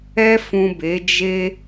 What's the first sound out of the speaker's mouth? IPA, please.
ɛ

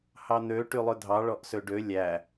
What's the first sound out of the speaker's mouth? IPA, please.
h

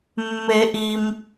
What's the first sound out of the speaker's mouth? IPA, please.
mː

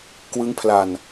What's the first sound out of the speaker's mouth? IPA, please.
k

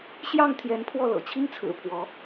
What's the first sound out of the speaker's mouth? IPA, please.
ɕ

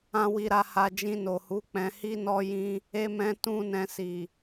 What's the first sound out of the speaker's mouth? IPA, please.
ã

